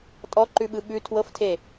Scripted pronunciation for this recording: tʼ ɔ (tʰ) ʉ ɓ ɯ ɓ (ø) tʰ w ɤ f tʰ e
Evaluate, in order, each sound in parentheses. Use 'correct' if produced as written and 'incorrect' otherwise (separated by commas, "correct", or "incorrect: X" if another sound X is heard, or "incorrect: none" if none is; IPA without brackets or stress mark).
incorrect: ǃ, incorrect: ʉ